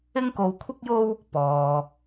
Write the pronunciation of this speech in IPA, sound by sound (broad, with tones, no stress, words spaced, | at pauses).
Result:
ɪ˥ŋko˧wkʷʰɪ˥k̚jo˥w | pɔː˧